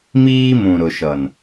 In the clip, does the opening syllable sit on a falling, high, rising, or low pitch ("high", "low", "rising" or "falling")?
high